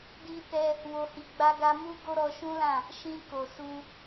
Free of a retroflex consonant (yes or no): yes